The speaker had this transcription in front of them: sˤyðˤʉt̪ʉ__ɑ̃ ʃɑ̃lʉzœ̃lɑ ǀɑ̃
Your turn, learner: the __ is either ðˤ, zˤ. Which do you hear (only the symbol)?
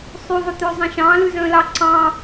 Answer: zˤ